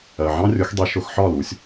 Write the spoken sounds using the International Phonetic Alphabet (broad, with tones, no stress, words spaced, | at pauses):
ɜ˩ʕɑ̃˥rʲʊ˩˥x dˤi˩˥ʃʊ˩˥xħɒ˥˩lu˩˥sʲ